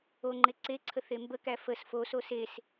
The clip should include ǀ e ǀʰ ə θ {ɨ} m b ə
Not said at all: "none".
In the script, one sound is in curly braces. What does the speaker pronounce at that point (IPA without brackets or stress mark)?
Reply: e